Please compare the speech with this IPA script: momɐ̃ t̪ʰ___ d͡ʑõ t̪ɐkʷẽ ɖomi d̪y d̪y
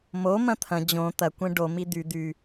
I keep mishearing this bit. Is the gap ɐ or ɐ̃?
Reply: ɐ̃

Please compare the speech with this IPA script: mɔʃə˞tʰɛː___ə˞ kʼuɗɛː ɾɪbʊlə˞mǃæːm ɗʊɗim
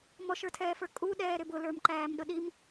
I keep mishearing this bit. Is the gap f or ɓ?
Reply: f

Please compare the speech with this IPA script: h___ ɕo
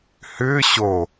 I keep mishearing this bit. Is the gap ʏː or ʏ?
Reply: ʏː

